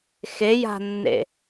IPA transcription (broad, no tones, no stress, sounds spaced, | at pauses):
x e j a̤ nː ḛ